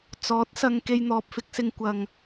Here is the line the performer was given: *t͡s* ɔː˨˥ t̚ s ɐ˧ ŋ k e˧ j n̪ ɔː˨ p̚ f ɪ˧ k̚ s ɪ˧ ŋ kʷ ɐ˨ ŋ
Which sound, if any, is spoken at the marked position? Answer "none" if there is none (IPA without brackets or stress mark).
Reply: t͡s